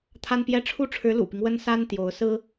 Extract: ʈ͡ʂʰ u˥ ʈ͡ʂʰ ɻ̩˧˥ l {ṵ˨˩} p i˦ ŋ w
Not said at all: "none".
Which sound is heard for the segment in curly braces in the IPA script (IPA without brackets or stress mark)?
ṵ˨˩